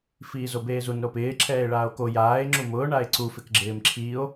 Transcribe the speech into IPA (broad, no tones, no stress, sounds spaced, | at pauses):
f iː z o b eː z u n ɾ o p ɪː ǁʰ ɛː e̯ ɭ aː o̯ k o j aː e̯ ŋ͡ǁ u m ʊː ɳ a e̯ ǀ u f ɪ k ɡ͡ǁ ɪː m ǁʰ iː o̯